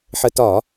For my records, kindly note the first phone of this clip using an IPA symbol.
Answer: ħ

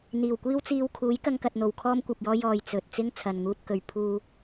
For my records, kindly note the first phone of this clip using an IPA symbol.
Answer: n̪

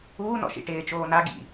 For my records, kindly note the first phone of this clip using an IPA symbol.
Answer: uː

